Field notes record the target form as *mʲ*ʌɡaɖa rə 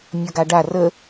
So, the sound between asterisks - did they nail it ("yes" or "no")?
yes